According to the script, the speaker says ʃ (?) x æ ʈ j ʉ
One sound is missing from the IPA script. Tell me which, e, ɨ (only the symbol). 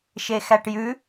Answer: e